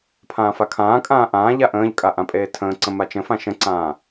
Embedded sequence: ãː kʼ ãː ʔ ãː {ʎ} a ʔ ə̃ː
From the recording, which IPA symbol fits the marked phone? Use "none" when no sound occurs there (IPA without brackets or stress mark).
ʎ